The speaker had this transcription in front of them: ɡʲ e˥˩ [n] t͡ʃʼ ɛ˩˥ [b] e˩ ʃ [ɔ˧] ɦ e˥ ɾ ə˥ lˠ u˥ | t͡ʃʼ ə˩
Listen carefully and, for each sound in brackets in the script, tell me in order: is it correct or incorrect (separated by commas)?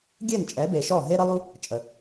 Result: correct, correct, incorrect